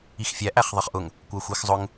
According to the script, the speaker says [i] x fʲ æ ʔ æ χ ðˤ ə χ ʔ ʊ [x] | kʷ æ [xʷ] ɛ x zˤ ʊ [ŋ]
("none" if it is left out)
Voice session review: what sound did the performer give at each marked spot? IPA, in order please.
i, ŋ, xʷ, ŋ

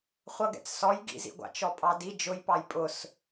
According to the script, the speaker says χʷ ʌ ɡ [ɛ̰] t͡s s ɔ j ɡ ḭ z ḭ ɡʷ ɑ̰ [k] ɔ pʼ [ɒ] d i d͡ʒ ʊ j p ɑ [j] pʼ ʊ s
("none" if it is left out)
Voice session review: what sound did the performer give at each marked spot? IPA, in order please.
ɛ̰, t͡ʃ, ɑ, j

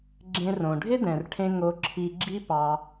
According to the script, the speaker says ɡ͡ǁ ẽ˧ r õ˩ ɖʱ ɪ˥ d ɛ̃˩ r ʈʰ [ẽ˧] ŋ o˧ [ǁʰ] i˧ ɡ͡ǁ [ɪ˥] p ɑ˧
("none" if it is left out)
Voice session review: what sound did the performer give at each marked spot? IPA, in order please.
ẽ˧, ǁʰ, i˥

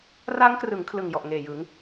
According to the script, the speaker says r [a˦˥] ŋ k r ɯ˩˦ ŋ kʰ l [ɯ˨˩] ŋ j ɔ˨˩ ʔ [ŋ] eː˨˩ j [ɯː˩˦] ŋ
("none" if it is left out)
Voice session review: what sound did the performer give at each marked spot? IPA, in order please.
a˦˥, ɯ˨˩, ŋ, ɯ˩˦

